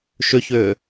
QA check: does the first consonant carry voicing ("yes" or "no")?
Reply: no